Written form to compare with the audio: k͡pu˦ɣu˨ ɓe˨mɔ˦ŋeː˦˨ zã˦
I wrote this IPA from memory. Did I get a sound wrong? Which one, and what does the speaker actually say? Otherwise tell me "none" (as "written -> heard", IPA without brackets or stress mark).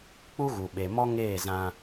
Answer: none